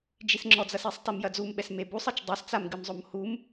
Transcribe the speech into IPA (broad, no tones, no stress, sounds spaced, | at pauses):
d͡ʒ i s ŋ͡ǁ ɔ d͡z ɐ s i sˤ t e m j ɐ d͡z u m ɓ ɛ s m e b u sˤ ɨ t͡ʃ dˤ e s t͡s a m ɡ ɨ m zˤ o m h u m